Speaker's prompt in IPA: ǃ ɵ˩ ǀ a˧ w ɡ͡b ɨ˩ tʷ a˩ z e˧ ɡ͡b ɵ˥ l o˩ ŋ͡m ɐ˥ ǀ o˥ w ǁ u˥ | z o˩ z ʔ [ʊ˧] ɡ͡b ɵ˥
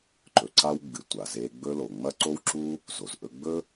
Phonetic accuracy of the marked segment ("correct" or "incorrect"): incorrect